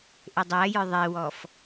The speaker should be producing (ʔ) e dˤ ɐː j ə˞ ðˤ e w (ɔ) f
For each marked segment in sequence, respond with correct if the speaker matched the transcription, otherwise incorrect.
correct, correct

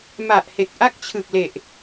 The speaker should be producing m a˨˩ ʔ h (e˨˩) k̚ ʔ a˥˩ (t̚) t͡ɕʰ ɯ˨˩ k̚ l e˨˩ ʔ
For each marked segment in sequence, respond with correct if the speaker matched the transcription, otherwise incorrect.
correct, incorrect: k̚

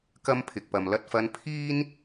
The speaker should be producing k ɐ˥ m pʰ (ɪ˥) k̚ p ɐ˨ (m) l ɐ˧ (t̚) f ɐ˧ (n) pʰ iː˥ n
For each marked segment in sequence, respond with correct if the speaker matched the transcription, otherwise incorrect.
incorrect: ɪ˨, correct, correct, correct

